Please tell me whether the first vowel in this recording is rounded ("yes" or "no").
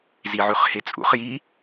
no